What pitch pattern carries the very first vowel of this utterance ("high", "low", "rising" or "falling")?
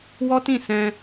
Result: high